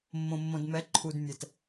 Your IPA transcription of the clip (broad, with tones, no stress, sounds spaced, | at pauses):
mː õ˨ mː õ˨ d m ɛ˨˦ ǃʰ u˨ d mʲ ɛ˨ t